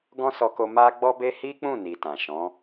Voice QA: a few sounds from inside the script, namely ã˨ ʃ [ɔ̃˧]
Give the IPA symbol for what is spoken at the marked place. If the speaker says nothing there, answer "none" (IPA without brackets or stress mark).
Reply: ɔ̃˨˦